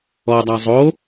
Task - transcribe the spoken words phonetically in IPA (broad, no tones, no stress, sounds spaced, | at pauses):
ɔ dˤ a zˤ o